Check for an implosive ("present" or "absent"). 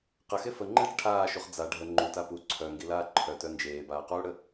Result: absent